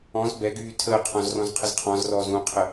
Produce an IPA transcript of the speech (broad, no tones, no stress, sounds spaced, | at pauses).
ɔ̃ z b ɛ ɡ yː tʰ əː qʰ ɔ̃ z r ɔ̃ z qʰ ə z qʰ ɔ̃ z r ɔː z ũ qʰ ə